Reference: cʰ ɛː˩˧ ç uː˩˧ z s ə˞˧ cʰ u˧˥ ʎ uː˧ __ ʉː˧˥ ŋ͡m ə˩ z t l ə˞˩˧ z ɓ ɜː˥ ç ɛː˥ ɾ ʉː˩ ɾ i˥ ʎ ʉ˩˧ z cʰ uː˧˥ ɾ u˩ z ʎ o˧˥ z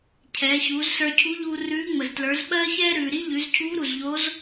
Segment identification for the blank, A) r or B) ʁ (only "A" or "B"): A